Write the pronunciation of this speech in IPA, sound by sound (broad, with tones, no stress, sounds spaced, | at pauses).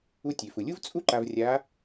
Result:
u˧ tʲ e˩ f ɯ˩ lʲ u˥ v t͡sʼ u˥ ǃ a˧ v rʲ a˧˥